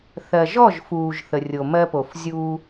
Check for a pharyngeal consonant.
absent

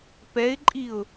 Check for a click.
present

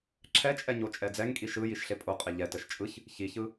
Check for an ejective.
present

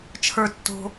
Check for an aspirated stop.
present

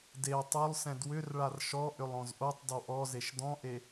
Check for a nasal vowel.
present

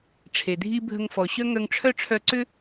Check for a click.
present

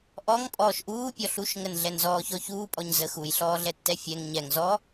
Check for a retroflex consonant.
absent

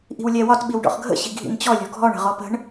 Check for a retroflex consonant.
present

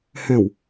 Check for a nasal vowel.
present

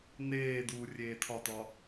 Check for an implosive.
absent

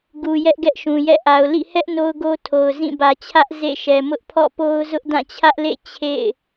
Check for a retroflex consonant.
absent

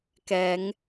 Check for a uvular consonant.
absent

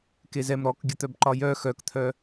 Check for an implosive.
absent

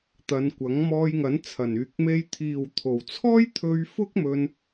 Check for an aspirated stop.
present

